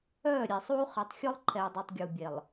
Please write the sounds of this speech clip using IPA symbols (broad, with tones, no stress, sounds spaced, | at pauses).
œː˦˨ ɾʲ ɛ˨ sˤ uː˦ χ ɛ˨ tˤ xʲ ɔ˦ lˠ ǃʰ ɛː˨ dˤ ɛ˨ tˤ ɡʲ uː˨ bʲ ɛ˨ lˠ